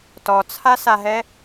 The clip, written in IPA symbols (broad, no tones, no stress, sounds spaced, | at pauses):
t ɔ t͡sʰ a s a ɦ ɛ